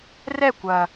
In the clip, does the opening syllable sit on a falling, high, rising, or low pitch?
falling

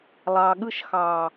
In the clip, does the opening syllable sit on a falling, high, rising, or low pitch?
low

